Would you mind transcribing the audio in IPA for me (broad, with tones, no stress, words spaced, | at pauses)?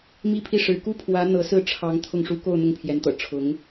mi˥pʰi˥˩ʂɻ̩˧˥ ku˥pʰwä˧˥ n̪ɤ˧˥sɹ̩˥˩ ʈ͡ʂʰɑ˧˥ŋ t̪ʰʊ˥˩ŋʂu˥ ko˥˧ʊ̯ n̪ʊ˥˩ŋpʰjɛ˧˥nt̪ɤ̰˨˩ ʈ͡ʂʰʊ˧˥ŋ